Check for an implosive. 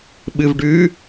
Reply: present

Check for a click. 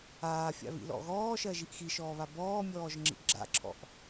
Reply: present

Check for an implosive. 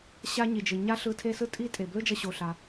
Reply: absent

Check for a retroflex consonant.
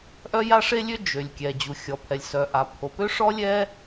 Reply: present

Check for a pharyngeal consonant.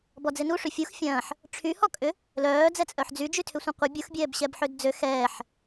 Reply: present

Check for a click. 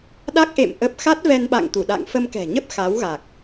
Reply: absent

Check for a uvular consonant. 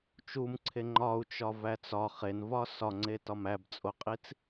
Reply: present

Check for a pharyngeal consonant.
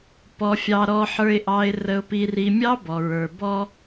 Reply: present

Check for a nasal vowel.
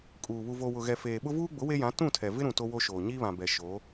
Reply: present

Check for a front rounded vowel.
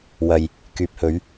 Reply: present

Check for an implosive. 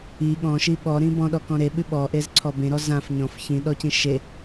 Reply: present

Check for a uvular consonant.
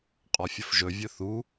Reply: present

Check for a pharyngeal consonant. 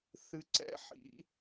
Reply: present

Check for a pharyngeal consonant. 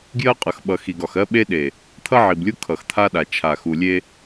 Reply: present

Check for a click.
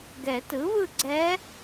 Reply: present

